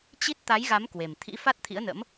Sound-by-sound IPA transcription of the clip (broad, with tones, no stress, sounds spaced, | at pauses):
t͡ɕ i˦˥ t̚ t̪ a˨˦ j ɣ a˨˦ m k w e˨˩ m t̪ʰ ḭ˧˥ f a˦˥ t̚ t̪ʰ ḭ˧˥ ə̯ n ə̰˧˥ m